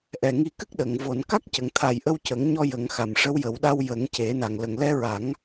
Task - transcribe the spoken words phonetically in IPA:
ʔ ɛ˨˩ ŋ i˧ k ɨ˦˥ k̚ ɗ ə˨˩˨ ŋ v o˨˩˨ n k a˦˥ k̚ c ə˨˩ ŋ t̪ʰ a˨˩ j ʔ ə˧ w c ə˨˩˦ ŋ ɲ ɔ˧ j ə˨˩˦ ŋ x a˨˩ m ʂ ə˧˥ w j ə˨˩˦ w ɗ a˧ w j ə˨˩˦ ŋ c e˨˩˦ n a˨˩ ŋ l ə˨˩ ŋ l ɛ˧˥ ɹ a˨˩˦ ŋ

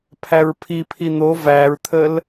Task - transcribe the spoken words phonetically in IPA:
pʰ æ ɹ pʰ i pʰ i n̪ o v æ ɹ t̪ʰ ə l

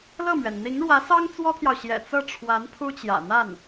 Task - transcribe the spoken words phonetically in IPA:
l ɤ˥˩ m ɥ ɛ˩ n n̪ i˧˥ ŋ ɻ w ä˧˥ s ɑ˥ ŋ t͡s w ɔ˥ t̪ʰ j ɑ˨ ʊ̯ ɕ j ɛ̰˨˩ t͡s ɤ˥˩ ʈ͡ʂʰ w a˧˥ n pʰ u˥ t͡ɕ j ä̰˨˩ n̪ a˥˩ n

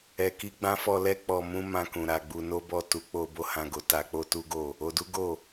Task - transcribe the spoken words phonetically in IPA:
ɛ˨ k i˧ ɡ͡b ã˦ f ɔ˧ l ɛ˦ k͡p ɔ˧ m ũ˦ m ã˧ k ũ˨ ɾ a˨ ɡ͡b u˧ n o˦ b ɔ˦˨ t u˨˦ k͡p o˧ b o˦ h ã˧ ɡ o˧ t a˧ k͡p o˦ t u˦ ɡ o˦˨ | o˧ d u˦ ɡ o˦˨

